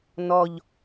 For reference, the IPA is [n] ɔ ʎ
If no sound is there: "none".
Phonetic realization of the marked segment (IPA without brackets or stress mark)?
n